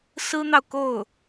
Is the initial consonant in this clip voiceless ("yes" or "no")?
yes